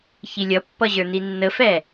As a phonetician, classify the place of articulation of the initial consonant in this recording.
palatal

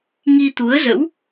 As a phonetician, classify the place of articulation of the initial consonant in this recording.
velar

